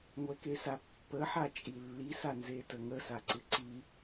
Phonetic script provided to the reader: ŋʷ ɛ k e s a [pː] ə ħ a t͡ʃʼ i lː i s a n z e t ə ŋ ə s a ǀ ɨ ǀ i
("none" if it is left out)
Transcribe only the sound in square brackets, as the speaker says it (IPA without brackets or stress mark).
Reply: pː